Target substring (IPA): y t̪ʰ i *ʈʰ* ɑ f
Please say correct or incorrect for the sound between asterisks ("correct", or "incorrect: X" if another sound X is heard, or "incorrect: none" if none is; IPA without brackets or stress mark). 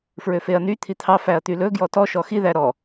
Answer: incorrect: t̪ʰ